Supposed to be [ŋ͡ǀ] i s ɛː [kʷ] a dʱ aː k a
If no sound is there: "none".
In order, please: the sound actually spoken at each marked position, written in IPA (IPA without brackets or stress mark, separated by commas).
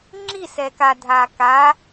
ŋ͡ǁ, k